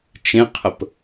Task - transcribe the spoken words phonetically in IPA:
t͡ʃ ẽ qʰ ə p

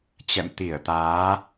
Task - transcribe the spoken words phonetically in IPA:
t͡ɕ ɛ̰˧˨ m t̪ i˧˩ ə̯ t̪ aː˨˦

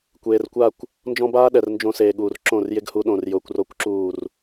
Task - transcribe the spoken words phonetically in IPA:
kʷ eː˨ r kʷ a˦˨ kʷ | n d͡ʒ ɔ̃˦ b aː˦ ɗ ɛ˨ r n d͡ʒ õ˧ s eː˨ ɠ uː˨ r ǁ õ˦˨ r j ɪ˦ ɡ h u˧ ɗ õ˨ r j ʊː˧ kʷ r o˦ kʷ ǁ uː˦˨ r

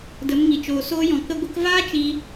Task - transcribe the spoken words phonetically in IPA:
d ə˨˦ m ŋ i˨ t͡ʃ oː˨ s oː˧ j ɔ̃˨ k ə˧ ɡʷ ə˧ k v aː˦ t͡ʃ i˧

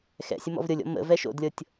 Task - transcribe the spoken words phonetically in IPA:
x ɛ̰ sʲ ə m ɔ̰ v ɾʲ ɤ lʲ ɔ̰ m ə̰ v ɛ ʃ o̰ d lʲ ɤ tʲ

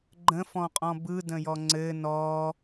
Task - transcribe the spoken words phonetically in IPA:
ɡ͡ǃ ə̃ f ɔ̃ qʼ ɔ̃ b ɯ d ə̃ j ɔ ŋ͡ǀ ɘ n ɔ

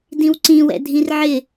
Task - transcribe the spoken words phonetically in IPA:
d ĩ w ǀ ĩ w ɛ̰ dʱ ĩ r ʕ ɪ

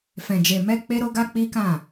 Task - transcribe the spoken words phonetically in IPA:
f ɛ̃˨ d͡ʒ e˨ m ɛ˧ k͡p e˦ ɾ o˦ ɡ a˦ k͡p i˦ k ã˦˨

